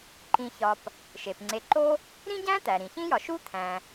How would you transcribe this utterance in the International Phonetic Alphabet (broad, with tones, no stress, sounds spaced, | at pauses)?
ǃ ĩ˨ ç ɒ˨ p | ʃ e˩ p ŋ͡ǀ e˨ ǃ o˦ | ɾ ĩ˥ ɟ æ̃˥ t̪ æ˩ ɾ ĩ˩ ç ĩ˥ j ɒ˨ ʃ u˥ t̪ʰ æ̃˩